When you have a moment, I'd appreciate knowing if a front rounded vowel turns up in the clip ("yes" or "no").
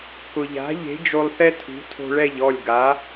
no